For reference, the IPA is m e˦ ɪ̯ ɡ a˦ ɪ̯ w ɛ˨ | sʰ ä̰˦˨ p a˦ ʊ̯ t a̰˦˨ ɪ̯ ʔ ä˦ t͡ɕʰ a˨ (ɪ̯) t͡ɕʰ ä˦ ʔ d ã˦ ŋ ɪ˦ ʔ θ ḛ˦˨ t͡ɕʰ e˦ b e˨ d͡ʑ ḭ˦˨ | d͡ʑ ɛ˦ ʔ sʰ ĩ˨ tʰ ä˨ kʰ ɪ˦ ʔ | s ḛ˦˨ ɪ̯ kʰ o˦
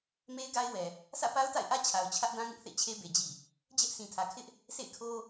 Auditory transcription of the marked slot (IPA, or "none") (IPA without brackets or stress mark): ʊ̯